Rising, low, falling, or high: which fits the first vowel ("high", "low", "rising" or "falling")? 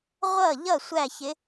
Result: falling